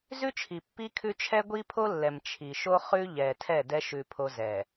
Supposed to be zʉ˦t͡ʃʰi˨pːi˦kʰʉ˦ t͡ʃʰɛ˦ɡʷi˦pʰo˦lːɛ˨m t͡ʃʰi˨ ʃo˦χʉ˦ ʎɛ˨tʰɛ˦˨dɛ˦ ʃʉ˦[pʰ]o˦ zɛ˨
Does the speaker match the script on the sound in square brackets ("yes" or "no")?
yes